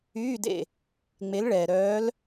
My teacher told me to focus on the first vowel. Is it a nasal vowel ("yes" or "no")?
no